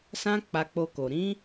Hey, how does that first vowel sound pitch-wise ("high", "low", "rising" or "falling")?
high